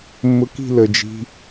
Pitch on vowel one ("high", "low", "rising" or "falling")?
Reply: rising